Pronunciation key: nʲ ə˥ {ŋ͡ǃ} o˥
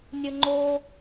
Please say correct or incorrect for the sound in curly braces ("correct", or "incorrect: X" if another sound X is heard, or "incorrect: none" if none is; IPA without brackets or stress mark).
correct